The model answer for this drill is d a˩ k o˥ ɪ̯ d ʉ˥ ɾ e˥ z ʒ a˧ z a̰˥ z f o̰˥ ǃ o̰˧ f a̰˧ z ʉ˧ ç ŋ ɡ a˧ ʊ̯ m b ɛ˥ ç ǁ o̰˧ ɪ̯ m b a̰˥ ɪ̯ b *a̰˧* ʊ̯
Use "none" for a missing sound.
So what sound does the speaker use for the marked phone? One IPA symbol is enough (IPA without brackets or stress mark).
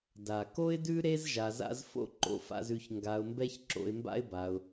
a˧